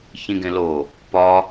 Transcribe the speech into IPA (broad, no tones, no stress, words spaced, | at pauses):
çĩɡẽlo | pɒ